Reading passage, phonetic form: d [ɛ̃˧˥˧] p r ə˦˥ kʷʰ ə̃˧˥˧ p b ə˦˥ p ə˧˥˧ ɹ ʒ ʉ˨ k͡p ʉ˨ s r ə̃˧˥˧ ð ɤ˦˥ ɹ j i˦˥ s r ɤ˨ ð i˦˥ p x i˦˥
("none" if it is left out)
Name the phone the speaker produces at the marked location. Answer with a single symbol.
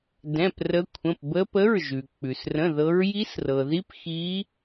ɛ̃˧˥˧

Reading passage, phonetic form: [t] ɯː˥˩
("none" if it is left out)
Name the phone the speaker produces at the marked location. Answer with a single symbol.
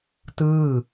t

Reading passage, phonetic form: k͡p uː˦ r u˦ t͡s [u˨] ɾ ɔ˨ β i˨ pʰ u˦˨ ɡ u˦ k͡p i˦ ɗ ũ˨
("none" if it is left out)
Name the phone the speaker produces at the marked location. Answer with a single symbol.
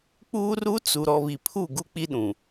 u˨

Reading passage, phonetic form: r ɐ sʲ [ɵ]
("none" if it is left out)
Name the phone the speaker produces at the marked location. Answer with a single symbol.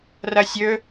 ɵ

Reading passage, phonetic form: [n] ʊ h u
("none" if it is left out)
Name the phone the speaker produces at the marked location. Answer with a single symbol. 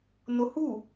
n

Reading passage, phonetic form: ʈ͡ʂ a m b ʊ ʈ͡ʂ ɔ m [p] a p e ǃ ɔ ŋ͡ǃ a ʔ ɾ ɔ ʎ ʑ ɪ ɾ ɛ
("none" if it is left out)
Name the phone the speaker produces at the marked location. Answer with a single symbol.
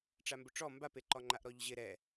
b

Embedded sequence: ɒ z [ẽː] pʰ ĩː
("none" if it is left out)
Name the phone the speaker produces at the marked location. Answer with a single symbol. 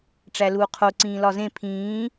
ẽ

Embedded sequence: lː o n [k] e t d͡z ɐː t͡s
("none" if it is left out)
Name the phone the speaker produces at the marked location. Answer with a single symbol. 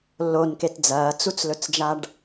k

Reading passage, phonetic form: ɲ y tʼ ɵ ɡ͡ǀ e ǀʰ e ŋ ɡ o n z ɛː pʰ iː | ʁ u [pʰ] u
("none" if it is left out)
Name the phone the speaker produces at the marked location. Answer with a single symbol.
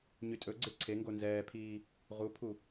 pʰ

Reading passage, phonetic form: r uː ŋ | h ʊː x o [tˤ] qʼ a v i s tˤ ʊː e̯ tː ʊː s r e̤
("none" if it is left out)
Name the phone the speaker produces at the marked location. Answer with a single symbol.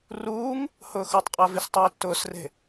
tˤ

